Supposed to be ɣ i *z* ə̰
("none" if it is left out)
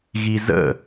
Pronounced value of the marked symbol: z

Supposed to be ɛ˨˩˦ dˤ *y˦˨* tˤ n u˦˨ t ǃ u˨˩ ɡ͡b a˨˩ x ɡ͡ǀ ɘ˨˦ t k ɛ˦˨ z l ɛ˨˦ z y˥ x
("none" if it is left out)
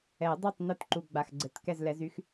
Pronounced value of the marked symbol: y˦˨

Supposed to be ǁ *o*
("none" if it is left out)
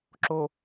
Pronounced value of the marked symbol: o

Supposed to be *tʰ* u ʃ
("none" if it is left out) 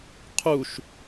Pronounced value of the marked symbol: qʰ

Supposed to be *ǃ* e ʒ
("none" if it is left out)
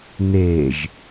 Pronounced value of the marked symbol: n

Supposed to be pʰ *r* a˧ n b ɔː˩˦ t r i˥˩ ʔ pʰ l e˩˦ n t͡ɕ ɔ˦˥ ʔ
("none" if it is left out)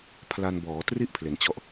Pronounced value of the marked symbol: l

